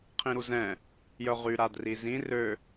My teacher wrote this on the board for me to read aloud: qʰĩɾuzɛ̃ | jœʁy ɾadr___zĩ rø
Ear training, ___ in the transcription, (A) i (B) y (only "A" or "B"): A